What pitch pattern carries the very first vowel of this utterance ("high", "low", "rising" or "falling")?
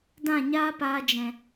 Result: falling